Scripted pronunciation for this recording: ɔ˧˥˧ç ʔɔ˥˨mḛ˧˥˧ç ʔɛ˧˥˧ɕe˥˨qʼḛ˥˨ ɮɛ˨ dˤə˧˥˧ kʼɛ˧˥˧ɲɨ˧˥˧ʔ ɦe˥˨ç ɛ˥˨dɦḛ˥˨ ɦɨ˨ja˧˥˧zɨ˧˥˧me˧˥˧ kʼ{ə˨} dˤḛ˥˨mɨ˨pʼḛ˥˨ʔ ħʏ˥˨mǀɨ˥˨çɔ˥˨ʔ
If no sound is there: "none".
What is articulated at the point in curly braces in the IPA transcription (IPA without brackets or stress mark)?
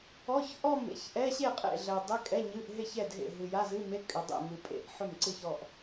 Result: ʏ˨